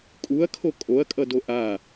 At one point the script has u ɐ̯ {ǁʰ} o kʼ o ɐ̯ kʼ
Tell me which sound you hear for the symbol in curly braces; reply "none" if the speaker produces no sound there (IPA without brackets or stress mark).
kʰ